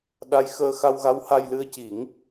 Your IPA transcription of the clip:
ɗa˧˥jxəː˧ xa˧wɣa˧˥wha˧jlɨ˧ə̯ ci˨˩˦ŋ

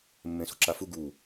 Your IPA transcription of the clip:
mːẽso̤ǁafu ɡu

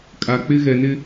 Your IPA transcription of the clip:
kʼa˨k͡pɪ˦ ɣɛ˨nɪ˦

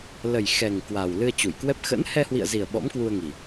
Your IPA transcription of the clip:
lə˨˩jxɛ˨˩ŋ kwa˨˩wlɨ˧ə̯t͡ɕu˧˩jkwɛ˦˥p̚ xə̰˧˥n hɛ˧hwḭ˧˨ə̯zi˨˩ə̯ ɓɔ̰˧˥mkwu˧ə̯ŋi˨˩

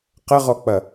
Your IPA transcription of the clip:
qəʁɔk͡pɐ

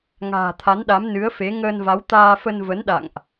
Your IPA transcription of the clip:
ŋa̤ː˨˩t̪ʰa˨˦nɗa˨˦m nɨ˨˦ə̯fe˨˦ ŋəː˧nva˨˦w t̪aː˧fə˧n və˨˦nɗa̰˧˨ŋʔ

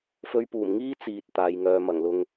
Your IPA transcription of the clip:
fɵ˧ɥpuː˨˩mŋiː˥ t͡siː˨t̚ t̪aː˨˧jŋœː˧ mɐ˨˩ŋlʊ˧ŋ

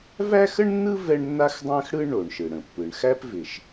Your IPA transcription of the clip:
væ˥xə˥ɳnːɯ˥ vɛ˥ɳnːa˥xdˤæ̃˥xɽɯ˥ ɳo˩ɳʃɯ˩ɽə̃˩ pːɯ˩ɳ xæ˥pvɪ˩ʃ

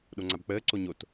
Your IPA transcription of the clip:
ɗoŋ͡ǀabk͡pəː ǀoɲot

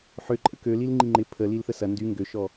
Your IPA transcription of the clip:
ħʏ ǃʼəkølil ŋ͡ǃiŋ͡ǃɪ pʰə lilθəsɐ ndy ŋɡøʃɔ

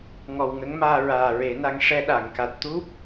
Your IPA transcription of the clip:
ŋɔ˨˩wŋə˧˥ŋmaː˧ ɹaː˨˩ɹe˨˩˦na˧ŋ ʂɛ˧ɗa˨˩˨ŋka˨˩t̚ t̪u˦˥p̚

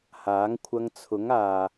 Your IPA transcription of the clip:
haː˨˥ŋkʷʰɐ˧ŋt͡sʰʊ˨˥ŋaː˨

